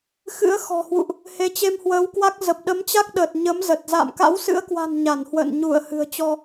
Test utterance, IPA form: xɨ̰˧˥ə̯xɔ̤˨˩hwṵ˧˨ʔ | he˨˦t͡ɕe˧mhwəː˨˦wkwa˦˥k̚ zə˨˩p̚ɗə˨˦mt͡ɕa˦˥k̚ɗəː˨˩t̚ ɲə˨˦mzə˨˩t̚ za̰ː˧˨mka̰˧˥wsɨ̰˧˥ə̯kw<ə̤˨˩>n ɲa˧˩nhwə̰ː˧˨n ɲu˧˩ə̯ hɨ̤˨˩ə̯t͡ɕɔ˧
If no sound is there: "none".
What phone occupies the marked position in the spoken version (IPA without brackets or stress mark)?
a̤˨˩